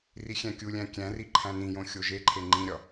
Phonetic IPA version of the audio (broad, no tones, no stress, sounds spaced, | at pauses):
r i xʲ æ̃ kʲ u lʲ æ̃ kʲ æ̃ r i ǃʰ æ̃ n ĩ j õ xʲ o ʒ e ǃʰ e ŋ͡ǃ ĩ ɾʲ ɒ